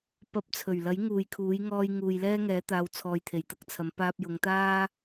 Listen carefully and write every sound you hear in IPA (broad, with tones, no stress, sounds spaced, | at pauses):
p ɐ˨˥ p̚ t͡sʰ ɵ˨˩ ɥ l ɐ˨˥ j ŋ uː˨ j kʰ uː˨˥ j ŋ ɔː˧ j ŋ uː˨ j l ɛː˥ ŋ ɛː˨˥ t̪ aː˨˧ w t͡sʰ ɔː˨ j t̪ʰ e˨˩ j t̪ ɐ˥ k̚ t͡sʰ ɐ˨˥ m p aː˧ p̚ j ʊ˨˧ ŋ t̪ aː˥